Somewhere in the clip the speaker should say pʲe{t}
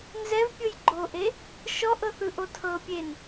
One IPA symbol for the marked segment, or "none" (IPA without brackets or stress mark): n